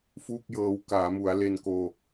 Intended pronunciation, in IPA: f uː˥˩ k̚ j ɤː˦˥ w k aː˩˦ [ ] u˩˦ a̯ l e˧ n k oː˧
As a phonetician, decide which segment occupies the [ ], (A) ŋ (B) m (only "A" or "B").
B